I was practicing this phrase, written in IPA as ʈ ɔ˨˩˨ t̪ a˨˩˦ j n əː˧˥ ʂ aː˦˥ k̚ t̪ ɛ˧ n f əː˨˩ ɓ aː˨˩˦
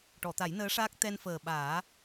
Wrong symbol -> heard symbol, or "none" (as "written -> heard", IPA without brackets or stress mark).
none